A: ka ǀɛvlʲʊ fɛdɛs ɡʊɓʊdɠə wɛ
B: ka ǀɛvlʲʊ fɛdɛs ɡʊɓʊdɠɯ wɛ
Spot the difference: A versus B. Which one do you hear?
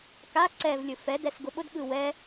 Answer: B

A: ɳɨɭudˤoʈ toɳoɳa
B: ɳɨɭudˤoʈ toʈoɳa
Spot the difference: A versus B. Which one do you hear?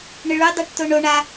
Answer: A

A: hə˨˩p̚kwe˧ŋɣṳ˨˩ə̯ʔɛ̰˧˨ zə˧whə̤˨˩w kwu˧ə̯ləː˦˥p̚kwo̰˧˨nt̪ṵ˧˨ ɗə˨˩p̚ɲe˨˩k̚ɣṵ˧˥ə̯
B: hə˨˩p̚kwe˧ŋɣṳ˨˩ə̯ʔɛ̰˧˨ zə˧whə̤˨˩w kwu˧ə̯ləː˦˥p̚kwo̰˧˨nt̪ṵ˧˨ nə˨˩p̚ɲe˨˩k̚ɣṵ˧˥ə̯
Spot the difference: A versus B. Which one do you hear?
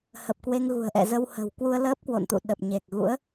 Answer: A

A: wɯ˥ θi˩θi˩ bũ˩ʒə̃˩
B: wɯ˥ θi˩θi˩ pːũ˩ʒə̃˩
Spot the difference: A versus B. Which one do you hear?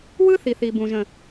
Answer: A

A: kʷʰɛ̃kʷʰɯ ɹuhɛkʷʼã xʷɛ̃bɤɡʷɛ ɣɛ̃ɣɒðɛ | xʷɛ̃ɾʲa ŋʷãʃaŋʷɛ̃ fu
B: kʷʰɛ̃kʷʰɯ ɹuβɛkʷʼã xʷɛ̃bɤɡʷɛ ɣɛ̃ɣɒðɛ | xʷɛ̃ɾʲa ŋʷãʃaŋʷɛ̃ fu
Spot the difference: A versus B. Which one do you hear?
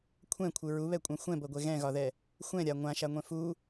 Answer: B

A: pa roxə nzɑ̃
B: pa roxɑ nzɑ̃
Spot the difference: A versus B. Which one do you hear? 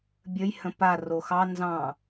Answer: B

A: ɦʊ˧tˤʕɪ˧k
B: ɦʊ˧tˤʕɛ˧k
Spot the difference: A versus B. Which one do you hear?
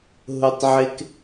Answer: A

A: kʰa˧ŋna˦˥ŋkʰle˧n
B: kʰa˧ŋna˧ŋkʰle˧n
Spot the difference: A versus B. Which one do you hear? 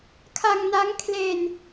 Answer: A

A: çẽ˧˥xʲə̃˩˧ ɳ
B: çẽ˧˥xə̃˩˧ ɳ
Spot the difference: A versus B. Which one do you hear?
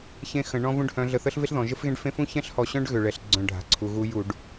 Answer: B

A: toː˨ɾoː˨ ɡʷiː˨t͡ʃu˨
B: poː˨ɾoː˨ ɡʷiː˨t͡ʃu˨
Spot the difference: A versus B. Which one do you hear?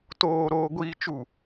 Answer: A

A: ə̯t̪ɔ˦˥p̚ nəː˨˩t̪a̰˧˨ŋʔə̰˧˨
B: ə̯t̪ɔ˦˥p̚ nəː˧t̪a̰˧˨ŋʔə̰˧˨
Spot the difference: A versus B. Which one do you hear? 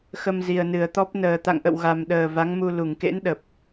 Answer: A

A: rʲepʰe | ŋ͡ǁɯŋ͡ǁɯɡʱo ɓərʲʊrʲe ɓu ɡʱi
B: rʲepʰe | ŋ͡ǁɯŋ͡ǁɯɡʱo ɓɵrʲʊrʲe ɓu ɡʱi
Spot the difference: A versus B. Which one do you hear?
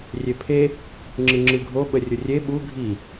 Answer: A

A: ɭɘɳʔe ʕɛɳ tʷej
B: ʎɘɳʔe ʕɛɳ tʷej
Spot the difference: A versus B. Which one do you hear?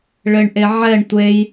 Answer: A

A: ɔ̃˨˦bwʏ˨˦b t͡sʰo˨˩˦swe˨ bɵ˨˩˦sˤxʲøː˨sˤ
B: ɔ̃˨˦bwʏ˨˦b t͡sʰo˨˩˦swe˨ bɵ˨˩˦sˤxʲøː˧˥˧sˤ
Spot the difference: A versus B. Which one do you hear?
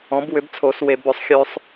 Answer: A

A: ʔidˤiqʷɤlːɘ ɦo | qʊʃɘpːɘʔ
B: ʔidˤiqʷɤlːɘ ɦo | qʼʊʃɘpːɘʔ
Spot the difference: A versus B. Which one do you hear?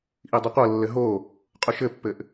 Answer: B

